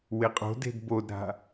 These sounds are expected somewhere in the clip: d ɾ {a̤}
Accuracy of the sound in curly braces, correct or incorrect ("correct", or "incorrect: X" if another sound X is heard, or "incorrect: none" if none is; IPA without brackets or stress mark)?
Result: correct